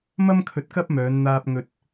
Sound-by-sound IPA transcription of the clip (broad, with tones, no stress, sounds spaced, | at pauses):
m ɐ˥ m kʰ ɵ˧ t̚ k ɐ˥ p̚ m œː˨˧ n n̪ aː˧ p̚ ŋ ɵ˧ t̚